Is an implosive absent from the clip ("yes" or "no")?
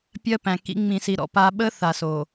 no